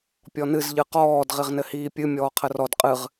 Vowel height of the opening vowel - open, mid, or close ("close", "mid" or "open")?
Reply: mid